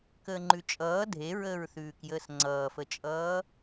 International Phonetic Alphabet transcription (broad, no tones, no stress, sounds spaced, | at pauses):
k əː ŋ͡ǃ ʉ t͡ʃʼ ʌː dʱ e ɹ əː ɹ θ ʉː k j əː s ŋ͡ǀ ʌː f ə t͡ʃʼ ʌː